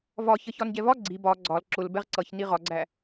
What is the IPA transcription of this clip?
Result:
vɒçʌ çɒnɟɛvɒ ɡ͡ǀi bɒ ɡ͡ǀɒl ǁʊl bɛʁǀʌç niʁɒɡ͡ǀæ

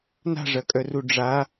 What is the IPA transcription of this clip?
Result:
na̤ʐɐkʼœru ɖ͡ʐa

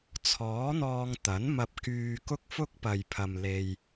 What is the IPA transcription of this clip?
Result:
t͡sʰɔː˨˥n̪ɔː˧ŋ t̪ɐ˨˥n mɐ˧p̚kyː˧ kʊ˥k̚fʊ˥k̚pɐ˨jpʰɐ˨m le˧j

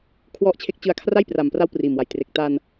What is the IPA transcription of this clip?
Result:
kʰwɔ˦˥ʔt͡ɕʰe˦˥k̚ t͡ɕɯ˧a̯kʰra˥˩j pra˨˩mpra˦˥w priː˨˩mwa˩˦j tre˨˩k̚ ta˧n

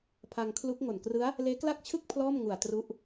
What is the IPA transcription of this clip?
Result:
pʰa˧ŋkʰlu˦˥k̚ ŋo˨˩nkrɯ˦˥a̯ | leː˦˥kla˥˩k̚t͡ɕʰɯ˥˩k̚ pʰlɔː˥˩mŋu˨˩a̯ tru˦˥ʔ

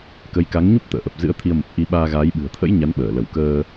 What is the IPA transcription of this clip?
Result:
kə˨˦jka˨˦ŋɲu˦˥p̚ t̪ə̰ː˧˨ ʔə˨˩p̚ zɨ̰˧˥ə̯t̪ʰi˧ə̯ mə˨˩p̚ ʔi˧ɓaː˧ɣaː˨˦jɓɨ̤˨˩ə̯ t̪ʰə̰˧˥j ɲa˨˦nɓəː˧˩ lə˧˩wkəː˧

